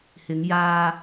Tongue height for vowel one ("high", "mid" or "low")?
high